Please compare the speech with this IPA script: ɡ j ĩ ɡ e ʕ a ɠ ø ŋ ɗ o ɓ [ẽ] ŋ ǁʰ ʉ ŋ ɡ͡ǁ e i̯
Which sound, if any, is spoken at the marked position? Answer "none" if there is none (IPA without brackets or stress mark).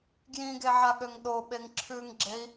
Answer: e